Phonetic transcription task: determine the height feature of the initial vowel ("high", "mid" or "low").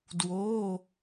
mid